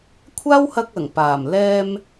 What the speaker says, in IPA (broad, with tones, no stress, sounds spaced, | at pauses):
kʷʰ aː˥ w h ɐ˧ k̚ ɐ˨˩ ŋ p aː˨˩ m l ɛː˧ m